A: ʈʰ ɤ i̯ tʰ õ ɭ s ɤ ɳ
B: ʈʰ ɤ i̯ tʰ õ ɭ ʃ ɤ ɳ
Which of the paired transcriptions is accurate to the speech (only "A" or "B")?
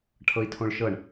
B